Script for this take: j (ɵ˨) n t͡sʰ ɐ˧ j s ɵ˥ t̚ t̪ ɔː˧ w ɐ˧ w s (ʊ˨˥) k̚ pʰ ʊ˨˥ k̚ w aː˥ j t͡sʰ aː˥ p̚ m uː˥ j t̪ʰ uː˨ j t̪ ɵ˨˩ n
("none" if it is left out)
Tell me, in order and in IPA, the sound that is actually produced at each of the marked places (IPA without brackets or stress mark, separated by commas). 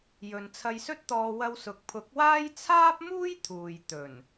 ɵ˨, ʊ˨